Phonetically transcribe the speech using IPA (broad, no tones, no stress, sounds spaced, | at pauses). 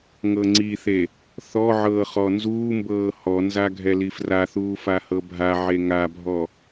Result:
ŋ ɤ ŋ͡ǀ i θ e | θ ɔ ʕ ɤː χ ɔ n z uː m b ɤː h ɔ n z a ɡʱ ɛ l i f r a θ uː f a h ɤ bʱ a ʕ e ŋ a bʱ ɔ